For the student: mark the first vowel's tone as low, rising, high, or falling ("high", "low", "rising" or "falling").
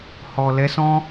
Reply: low